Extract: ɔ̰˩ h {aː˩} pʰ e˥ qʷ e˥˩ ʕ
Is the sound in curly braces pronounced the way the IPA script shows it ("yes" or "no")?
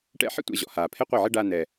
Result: yes